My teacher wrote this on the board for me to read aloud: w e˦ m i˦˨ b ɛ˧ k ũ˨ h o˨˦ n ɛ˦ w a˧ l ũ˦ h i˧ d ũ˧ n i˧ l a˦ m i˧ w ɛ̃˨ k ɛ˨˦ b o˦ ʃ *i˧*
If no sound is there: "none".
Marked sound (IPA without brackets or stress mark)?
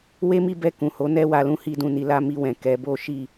i˦˨